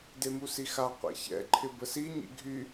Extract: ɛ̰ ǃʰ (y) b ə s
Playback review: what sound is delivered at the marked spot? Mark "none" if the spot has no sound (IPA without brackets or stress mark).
ɪ